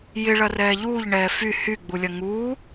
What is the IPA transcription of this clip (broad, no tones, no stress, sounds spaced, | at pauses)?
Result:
j ɪ ɭ ɐ r ɛː ʎ uː ʎ ɳ ɛː f y h y ɡ͡b u lʲ ɐ ŋ uː